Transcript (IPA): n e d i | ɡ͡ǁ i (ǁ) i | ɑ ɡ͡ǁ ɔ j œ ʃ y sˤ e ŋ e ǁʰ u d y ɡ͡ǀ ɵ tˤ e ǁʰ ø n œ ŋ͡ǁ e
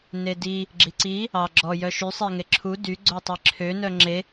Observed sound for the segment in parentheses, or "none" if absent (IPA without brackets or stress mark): ǀ